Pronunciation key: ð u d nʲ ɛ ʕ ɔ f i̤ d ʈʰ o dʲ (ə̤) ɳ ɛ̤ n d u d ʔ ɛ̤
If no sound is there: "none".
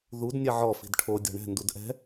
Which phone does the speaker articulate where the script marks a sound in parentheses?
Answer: ɔ̤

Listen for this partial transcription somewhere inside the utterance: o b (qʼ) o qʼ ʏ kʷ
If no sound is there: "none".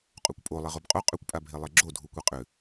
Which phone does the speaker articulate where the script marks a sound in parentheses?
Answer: qʼ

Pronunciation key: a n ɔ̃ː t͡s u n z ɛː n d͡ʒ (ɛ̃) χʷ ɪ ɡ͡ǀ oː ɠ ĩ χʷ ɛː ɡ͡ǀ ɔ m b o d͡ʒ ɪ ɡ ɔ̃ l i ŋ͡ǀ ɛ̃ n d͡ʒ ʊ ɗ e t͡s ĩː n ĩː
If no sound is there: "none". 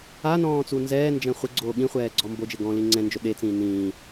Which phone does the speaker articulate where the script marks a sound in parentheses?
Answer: ɛ̃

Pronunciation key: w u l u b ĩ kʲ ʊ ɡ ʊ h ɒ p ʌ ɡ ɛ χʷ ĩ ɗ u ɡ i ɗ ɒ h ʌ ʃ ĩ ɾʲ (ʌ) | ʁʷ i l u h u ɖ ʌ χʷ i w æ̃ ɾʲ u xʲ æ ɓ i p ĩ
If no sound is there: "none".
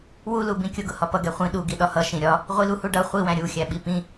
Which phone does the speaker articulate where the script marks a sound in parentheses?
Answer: ɒ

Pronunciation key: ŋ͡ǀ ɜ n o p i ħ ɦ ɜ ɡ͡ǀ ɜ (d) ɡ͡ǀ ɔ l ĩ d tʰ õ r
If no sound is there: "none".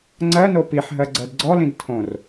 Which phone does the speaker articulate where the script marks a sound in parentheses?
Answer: d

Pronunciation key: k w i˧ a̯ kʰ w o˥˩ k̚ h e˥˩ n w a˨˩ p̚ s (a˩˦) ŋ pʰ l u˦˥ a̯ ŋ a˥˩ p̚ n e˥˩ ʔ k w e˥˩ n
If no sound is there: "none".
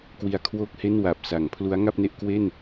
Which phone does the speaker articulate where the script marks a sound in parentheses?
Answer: a˩˦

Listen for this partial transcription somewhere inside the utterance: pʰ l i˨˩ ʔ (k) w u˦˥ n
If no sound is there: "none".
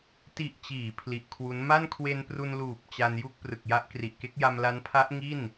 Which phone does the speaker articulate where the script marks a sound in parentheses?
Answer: kʰ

